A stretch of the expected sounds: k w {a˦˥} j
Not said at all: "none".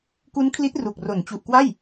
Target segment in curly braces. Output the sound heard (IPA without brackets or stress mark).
a˥˩